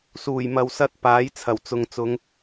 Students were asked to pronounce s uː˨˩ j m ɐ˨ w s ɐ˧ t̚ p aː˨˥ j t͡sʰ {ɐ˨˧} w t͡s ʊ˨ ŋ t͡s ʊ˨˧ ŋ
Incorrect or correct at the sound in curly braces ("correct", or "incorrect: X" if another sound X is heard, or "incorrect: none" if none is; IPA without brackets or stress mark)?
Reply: incorrect: ɐ˨˩